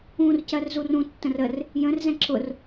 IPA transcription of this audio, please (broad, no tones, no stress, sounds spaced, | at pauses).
ũ r c ɜ r z u r ũ tː ə̃ r ə r | j ə̃ r z ɛ̃ ǁ ʊ r